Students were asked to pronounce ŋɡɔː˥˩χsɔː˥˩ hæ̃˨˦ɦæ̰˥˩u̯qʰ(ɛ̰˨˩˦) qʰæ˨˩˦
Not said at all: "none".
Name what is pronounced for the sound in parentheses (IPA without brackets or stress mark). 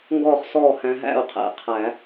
ɛ̰˨˩˦